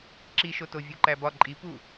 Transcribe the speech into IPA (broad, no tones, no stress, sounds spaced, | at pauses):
ǁ i ʃ o t o vʲ u ǃ æ b ɒ ǃʼ i p u